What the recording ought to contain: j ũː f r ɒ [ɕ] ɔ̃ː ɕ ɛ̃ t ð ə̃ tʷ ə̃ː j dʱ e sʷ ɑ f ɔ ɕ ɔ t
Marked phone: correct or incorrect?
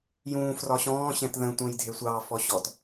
correct